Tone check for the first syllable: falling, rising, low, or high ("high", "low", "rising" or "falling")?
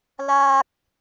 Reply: high